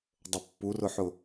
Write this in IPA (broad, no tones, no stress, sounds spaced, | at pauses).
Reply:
dˤ ə pː u r ʊ ħ ʊ